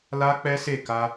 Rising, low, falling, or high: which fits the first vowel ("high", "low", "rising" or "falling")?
high